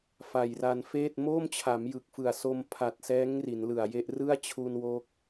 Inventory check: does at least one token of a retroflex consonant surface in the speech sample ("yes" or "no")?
no